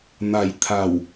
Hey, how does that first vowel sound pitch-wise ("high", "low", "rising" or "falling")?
low